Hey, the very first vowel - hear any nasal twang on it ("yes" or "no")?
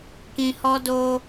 yes